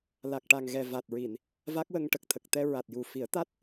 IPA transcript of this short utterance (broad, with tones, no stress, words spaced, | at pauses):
la˨˩k̚ʈa˨˩ŋɣɛ˨˩ va˨˩t̚ɹi˨˩˨n | va˦˥k̚wə˧ŋ ʈə˨˩k̚t̪ʰə˨˩k̚t̪ɛ˧ ɹa˨˩t̚ju˨˩fi˨˩˦ə̯ t̪a˦˥t̚